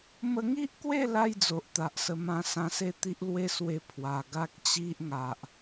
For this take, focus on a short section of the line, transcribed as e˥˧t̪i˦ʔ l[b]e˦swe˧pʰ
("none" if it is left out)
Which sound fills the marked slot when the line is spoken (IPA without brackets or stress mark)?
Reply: w